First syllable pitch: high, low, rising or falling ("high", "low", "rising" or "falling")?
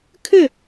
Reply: falling